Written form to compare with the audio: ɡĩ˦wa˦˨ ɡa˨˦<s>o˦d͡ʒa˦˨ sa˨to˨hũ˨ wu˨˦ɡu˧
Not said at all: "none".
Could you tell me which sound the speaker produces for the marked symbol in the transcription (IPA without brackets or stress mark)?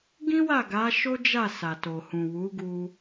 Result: ʃ